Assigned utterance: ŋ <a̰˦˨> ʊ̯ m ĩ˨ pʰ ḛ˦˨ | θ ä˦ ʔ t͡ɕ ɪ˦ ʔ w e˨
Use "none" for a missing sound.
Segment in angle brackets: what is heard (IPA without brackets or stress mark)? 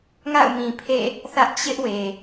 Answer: a̰˦˨